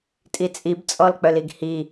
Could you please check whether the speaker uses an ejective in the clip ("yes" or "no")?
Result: yes